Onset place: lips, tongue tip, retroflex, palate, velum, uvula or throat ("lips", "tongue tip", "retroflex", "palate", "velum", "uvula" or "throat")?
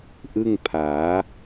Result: throat